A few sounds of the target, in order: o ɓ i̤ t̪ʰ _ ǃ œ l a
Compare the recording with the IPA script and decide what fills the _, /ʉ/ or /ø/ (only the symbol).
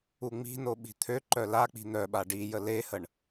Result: ø